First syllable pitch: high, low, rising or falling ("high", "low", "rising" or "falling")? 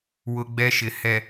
high